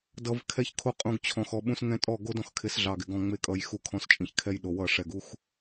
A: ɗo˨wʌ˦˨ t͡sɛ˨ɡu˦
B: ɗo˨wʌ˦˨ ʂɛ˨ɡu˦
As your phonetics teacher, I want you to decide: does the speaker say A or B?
B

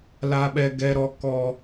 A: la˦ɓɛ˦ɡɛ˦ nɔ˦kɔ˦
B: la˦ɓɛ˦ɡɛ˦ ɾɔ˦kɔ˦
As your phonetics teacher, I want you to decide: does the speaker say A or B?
B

